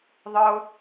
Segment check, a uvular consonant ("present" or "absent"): absent